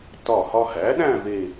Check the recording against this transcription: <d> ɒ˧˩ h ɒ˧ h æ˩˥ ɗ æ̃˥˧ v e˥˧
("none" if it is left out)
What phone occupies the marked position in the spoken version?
t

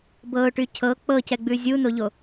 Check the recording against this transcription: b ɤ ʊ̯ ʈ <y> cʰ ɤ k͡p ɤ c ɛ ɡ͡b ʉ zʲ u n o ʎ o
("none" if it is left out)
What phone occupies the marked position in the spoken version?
y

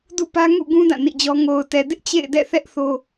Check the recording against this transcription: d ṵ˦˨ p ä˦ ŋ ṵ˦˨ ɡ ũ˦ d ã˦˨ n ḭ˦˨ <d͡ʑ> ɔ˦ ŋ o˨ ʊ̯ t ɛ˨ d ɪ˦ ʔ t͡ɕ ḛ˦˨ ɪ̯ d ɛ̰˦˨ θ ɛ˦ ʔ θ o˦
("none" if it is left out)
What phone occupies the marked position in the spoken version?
d͡ʑ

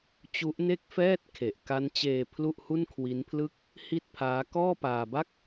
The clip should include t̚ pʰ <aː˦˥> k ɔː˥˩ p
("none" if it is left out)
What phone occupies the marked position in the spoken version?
aː˦˥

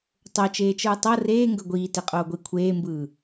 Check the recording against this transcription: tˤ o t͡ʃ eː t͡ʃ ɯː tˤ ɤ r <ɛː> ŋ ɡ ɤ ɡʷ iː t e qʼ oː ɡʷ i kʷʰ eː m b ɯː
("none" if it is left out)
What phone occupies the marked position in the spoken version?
eː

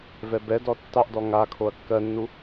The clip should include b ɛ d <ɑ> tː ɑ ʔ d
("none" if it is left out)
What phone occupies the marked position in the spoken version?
ɔ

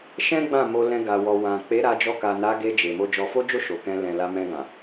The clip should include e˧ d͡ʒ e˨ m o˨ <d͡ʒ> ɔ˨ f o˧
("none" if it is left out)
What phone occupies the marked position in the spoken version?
d͡ʒ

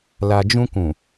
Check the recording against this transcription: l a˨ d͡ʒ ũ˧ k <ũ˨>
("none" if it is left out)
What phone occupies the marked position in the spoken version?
ũ˨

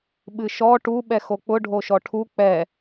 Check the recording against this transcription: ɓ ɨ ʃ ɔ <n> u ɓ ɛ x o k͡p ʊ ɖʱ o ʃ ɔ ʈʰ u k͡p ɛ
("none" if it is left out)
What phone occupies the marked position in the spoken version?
ʈ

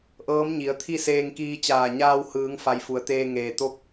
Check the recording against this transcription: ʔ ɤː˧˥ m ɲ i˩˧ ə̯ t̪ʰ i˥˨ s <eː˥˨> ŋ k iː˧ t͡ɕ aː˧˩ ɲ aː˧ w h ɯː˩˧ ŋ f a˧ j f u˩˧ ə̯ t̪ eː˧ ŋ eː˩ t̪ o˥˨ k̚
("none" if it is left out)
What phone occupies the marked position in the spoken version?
eː˧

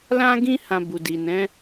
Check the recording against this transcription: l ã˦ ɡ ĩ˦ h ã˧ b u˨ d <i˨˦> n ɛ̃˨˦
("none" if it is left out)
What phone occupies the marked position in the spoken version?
i˨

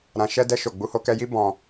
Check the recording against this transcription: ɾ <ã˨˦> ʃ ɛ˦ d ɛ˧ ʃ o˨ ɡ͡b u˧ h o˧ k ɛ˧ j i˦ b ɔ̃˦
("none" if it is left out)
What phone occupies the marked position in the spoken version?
ã˧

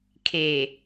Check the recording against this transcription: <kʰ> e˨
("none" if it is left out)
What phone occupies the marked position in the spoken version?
kʰ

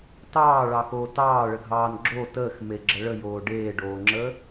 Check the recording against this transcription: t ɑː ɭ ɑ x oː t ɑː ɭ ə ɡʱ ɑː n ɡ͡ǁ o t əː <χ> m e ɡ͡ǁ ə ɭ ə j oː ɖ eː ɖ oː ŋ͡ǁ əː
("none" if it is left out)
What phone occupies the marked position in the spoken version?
x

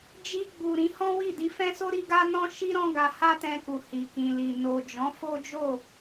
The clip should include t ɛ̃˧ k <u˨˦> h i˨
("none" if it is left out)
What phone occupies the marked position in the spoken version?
u˨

